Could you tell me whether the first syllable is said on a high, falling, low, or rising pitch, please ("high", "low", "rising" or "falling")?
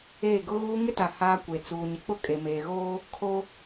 falling